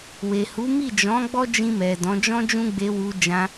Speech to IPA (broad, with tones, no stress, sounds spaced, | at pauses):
w e˨ h u˨˦ m i˦˨ d͡ʒ ɔ̃˨˦ ɡ͡b ɔ˦ d͡ʒ ĩ˧ m ɛ˨ d ɔ̃˨˦ d͡ʒ ɔ̃˦ d͡ʒ ũ˦ ɡ͡b e˧ w u˧ d͡ʒ ã˧